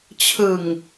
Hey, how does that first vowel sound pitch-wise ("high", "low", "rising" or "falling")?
low